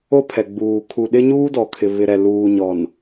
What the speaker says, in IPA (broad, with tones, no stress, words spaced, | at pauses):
o˦pʰɛ˨ɡ͡buː˨ kʰu˨ ɗɪ˦ɲuː˦dɔ˨kʰɪ˨ βɪ˨ɾɛ˨luː˨ɲɔ˨n